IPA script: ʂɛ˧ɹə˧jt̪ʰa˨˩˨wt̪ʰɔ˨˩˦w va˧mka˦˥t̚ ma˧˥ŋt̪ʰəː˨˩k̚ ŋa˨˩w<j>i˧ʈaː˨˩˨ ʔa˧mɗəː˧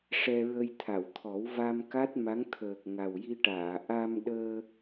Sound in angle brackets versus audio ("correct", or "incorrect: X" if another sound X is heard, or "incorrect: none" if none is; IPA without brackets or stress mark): correct